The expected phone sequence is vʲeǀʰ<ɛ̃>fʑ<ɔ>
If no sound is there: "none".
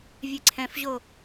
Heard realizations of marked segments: ɛ̃, o

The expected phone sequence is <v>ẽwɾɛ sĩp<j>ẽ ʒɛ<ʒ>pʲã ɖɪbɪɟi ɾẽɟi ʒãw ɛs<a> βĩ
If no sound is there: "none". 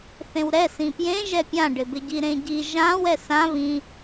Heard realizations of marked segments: θ, j, none, ã

